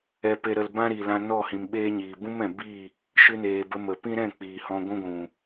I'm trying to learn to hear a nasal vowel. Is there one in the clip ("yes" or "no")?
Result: yes